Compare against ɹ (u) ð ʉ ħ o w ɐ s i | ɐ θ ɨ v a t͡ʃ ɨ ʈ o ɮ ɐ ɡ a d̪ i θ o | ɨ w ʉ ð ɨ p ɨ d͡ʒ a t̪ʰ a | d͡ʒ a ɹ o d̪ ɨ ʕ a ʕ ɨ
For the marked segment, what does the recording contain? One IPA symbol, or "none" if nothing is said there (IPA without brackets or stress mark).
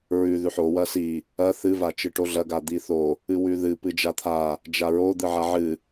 ʉ